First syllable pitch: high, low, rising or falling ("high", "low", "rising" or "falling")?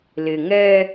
low